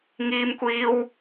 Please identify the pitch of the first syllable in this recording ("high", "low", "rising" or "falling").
high